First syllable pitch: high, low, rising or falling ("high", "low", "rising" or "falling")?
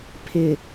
low